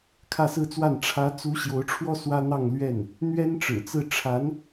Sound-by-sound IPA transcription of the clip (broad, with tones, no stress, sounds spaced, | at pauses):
kʰ ä˥˧ s ɹ̩˥˧ t͡s w a˥˩ n ʈ͡ʂʰ ä˧˥ t͡s u˧˥ ɕ j o˧˥ ʊ̯ ʈ͡ʂʰ w ɔ˥ s w ä˥ n̪ ɑ˥˧ ŋ l ɥ ɛ˥˩ n | n̪ ɥ ɛ˥ n ʈ͡ʂ ɻ̩˨˩ t͡s ɹ̩˥˩ ʈ͡ʂʰ a˧˥ n